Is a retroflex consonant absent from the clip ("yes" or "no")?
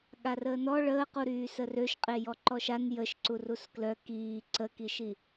no